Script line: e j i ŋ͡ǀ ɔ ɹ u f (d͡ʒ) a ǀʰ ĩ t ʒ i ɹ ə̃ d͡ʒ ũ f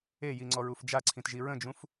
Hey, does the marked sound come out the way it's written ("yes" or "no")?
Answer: yes